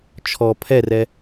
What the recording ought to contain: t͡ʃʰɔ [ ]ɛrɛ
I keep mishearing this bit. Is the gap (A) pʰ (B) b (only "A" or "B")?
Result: A